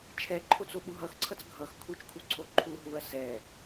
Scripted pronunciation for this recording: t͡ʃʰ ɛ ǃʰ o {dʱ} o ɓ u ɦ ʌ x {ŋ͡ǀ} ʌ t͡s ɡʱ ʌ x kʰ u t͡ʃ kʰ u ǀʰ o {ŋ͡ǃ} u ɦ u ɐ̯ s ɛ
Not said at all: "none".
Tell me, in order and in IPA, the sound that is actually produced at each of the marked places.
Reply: t͡s, ǀʰ, ǃʰ

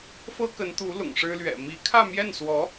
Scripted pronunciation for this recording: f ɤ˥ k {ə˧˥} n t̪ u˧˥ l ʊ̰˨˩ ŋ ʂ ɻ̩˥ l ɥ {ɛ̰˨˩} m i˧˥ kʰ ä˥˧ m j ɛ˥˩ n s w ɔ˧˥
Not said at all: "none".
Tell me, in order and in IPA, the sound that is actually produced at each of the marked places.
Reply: ə˧˥, ɛ̰˨˩

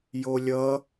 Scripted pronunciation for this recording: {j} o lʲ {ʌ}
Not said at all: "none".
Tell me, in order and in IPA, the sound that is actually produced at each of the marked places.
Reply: j, ʌ

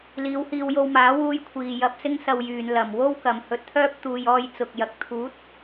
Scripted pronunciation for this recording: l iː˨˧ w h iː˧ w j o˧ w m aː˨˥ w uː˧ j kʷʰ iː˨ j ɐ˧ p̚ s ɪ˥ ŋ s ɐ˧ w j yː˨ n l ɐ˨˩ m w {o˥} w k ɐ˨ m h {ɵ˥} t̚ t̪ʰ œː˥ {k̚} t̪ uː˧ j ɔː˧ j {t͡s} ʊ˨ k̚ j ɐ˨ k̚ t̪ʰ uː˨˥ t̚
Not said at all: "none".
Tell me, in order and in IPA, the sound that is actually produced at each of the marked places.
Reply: o˥, ɵ˧, p̚, t͡s

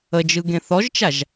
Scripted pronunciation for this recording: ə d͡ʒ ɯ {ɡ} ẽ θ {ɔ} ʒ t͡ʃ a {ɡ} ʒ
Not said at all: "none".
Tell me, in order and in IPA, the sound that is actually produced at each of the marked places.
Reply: ɡ, ɔ, none

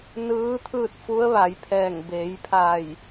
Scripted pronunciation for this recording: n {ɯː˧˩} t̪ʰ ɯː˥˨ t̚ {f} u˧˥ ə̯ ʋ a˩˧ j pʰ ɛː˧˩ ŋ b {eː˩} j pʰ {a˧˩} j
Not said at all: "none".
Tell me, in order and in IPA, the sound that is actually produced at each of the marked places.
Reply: ɯː˧˥, f, eː˩˧, a˧˩

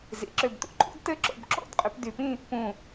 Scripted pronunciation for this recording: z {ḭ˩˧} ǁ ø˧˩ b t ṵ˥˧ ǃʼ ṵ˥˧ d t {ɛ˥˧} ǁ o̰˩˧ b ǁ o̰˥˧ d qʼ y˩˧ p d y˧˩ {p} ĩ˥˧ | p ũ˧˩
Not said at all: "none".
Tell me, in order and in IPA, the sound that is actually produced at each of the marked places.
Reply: ḭ˩˧, ɘ˥˧, p

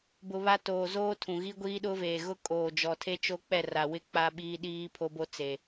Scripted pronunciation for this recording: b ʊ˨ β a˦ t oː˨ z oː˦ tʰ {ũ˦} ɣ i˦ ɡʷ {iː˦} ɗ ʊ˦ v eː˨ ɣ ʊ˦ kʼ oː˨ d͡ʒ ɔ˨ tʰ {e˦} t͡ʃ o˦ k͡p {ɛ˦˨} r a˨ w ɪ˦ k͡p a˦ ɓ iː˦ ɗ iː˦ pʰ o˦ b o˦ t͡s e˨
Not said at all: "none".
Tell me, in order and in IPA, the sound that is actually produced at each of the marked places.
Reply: ũ˨, iː˦, e˦, ɛ˦˨

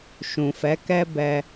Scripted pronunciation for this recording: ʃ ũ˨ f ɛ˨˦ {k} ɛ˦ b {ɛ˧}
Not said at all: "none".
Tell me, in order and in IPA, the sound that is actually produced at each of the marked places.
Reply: k, ɛ˧

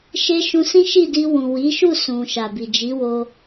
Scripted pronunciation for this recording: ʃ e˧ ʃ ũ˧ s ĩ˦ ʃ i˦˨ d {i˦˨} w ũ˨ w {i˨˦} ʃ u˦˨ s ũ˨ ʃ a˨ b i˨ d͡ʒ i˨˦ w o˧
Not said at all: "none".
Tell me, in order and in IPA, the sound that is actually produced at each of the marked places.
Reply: i˧, i˨˦

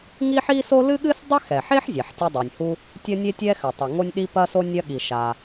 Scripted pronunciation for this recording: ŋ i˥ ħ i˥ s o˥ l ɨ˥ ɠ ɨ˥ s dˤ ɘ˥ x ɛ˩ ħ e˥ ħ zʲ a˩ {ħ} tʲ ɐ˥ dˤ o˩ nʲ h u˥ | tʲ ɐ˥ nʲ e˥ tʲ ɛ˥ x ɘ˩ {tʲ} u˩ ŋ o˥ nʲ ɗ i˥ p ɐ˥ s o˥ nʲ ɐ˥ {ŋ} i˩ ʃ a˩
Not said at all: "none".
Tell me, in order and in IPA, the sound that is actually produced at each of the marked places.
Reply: ħ, tˤ, ɠ

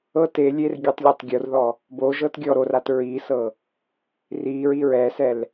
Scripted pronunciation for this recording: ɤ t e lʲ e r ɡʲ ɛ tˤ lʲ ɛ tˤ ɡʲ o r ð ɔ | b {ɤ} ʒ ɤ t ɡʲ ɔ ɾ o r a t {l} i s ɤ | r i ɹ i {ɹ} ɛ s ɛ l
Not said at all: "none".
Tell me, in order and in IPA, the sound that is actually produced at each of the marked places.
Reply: o, ɹ, ɹ

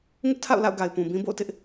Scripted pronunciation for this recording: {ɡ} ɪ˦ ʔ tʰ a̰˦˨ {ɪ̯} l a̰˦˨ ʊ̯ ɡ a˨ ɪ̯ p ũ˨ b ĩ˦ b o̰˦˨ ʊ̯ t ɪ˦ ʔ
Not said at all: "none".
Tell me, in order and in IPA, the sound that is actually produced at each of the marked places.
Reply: ŋ, ʊ̯

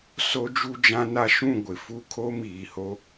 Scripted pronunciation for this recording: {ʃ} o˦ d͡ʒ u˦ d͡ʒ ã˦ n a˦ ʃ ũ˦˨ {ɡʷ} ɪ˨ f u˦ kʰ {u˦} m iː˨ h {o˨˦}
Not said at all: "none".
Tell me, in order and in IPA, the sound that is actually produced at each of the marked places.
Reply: s, ɡʷ, o˦, o˦

